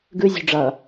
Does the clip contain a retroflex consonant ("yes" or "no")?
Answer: yes